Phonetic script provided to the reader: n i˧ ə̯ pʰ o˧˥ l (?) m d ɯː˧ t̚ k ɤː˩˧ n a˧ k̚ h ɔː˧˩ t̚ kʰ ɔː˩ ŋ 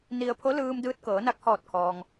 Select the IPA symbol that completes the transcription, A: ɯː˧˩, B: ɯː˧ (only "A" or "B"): B